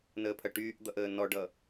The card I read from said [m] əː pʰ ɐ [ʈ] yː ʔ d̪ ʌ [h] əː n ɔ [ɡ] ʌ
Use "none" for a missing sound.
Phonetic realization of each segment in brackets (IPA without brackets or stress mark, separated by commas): n, ʈ, ʔ, ɖ